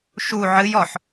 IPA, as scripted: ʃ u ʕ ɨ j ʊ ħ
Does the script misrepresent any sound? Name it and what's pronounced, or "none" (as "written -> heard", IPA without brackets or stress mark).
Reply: ʊ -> ɔ